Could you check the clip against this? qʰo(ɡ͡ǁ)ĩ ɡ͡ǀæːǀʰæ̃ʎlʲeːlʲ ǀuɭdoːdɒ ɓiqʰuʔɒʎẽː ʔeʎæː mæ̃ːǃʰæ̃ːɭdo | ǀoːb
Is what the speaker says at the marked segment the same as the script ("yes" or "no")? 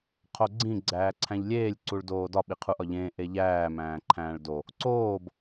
no